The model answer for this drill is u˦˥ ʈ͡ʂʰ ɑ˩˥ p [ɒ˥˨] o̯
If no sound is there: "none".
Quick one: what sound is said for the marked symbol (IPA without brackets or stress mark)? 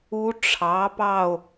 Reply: ɑ˥˨